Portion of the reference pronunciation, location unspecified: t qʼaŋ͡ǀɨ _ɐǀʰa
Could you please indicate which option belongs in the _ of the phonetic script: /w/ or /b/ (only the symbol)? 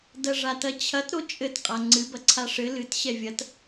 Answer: b